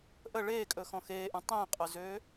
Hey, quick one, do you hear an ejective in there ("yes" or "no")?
yes